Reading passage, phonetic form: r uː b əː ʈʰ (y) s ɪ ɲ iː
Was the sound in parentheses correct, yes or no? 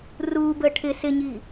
no